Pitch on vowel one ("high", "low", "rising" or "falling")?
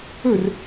falling